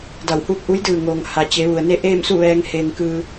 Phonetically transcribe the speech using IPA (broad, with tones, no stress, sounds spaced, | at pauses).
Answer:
d a˧˩ w h uː˥˨ p̚ ʔ u˧˥ j d ɯː˧˩ ŋ oː˩ ŋ h a˩ t͡ɕ e˩˧ ʋ u˩ ə̯ n e˥˨ ʔ eː˥˨ m s u˥˨ ʋ ɛː˧ ŋ h eː˧ ŋ k ɯː˧